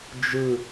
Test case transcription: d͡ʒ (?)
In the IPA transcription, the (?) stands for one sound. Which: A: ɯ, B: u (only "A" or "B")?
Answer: A